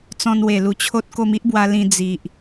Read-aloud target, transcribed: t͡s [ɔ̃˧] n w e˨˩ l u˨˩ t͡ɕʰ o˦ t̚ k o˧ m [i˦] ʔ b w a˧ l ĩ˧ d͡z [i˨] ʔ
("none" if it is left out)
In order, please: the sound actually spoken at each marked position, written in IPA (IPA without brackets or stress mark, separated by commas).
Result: ɔ̃˧, i˦, i˨